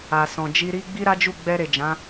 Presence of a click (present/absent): absent